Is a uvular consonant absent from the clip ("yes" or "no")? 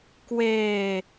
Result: yes